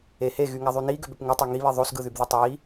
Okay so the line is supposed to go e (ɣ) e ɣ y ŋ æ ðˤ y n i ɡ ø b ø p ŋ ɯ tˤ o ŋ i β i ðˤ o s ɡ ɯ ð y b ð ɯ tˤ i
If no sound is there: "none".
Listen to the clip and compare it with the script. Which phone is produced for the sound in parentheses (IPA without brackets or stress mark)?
h